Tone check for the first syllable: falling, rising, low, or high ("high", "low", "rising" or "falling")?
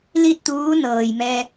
falling